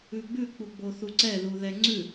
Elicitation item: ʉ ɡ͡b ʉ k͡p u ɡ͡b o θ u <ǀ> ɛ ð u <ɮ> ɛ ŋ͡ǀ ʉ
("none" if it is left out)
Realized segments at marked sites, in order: ǀ, ð

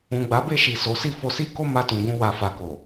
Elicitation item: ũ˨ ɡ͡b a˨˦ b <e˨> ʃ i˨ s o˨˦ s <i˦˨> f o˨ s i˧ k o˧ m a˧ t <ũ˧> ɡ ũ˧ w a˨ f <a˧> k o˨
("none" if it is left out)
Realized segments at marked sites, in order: e˦˨, i˦˨, ũ˨, a˨

